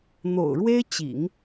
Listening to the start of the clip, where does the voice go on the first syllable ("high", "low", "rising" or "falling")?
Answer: low